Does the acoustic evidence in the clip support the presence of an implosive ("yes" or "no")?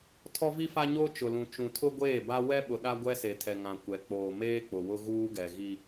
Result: yes